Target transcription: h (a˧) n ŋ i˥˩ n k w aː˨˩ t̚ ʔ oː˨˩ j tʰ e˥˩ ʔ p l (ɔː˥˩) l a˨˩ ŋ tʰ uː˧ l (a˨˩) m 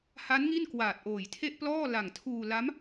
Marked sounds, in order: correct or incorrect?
incorrect, correct, incorrect

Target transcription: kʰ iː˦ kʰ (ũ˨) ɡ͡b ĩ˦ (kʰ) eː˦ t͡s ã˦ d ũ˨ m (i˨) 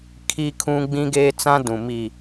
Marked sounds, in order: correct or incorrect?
incorrect, incorrect, correct

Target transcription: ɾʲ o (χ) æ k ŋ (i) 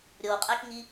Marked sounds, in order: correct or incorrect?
incorrect, correct

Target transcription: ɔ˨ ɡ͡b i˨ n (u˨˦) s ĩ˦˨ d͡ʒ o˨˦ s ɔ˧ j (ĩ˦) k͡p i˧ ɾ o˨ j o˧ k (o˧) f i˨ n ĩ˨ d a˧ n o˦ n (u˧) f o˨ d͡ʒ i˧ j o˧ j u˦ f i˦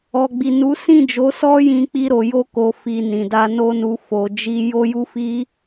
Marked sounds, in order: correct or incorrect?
correct, incorrect, incorrect, correct

